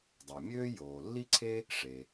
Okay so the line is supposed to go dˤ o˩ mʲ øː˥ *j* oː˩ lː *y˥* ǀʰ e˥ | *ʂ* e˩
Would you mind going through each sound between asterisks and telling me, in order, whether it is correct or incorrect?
correct, incorrect: i˥, correct

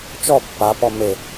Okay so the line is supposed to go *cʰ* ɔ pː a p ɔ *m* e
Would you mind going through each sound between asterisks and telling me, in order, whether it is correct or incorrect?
incorrect: t͡ʃ, correct

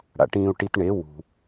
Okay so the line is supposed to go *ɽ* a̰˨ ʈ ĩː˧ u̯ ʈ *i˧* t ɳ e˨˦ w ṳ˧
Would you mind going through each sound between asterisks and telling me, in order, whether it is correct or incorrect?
correct, correct

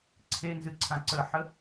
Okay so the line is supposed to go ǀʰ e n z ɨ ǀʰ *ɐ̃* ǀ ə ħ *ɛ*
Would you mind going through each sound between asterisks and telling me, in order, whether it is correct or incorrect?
incorrect: ã, incorrect: ə

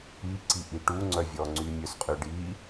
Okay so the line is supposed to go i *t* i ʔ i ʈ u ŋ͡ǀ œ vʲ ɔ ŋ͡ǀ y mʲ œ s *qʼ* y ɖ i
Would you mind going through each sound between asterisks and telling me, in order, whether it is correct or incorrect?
incorrect: ǀ, correct

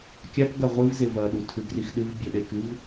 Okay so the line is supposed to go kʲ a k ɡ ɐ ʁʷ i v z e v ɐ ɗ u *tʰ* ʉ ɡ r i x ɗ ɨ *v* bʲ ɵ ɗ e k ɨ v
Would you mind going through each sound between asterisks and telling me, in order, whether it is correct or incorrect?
correct, correct

